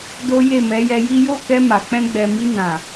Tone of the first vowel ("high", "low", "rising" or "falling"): high